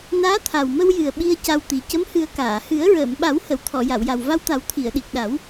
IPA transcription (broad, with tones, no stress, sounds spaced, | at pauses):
n aː˧˥ t̪ʰ a˨˩ w m ə˧ w j ɨ˨˩ ə̯ ɓ i˧ ə̯ c a˧ w t̪ i˨˩ c ə˧˥ m h ɨ˨˩˦ ə̯ k aː˨˩˨ h ɨ˨˩˦ ə̯ ɹ əː˨˩˨ m ɓ a˨˩˦ w h ə˨˩˨ w t̪ʰ ɔ˨˩˨ j a˨˩˨ w j a˨˩ w v a˧ w t̪ a˨˩˦ w t̪ʰ i˨˩˨ ə̯ ɗ i˨˩ k̚ ɗ a˨˩˦ w